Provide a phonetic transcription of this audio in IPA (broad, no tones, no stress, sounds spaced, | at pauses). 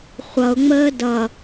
χʷ ʌ ʊ̯ ŋ͡m əː d ʌ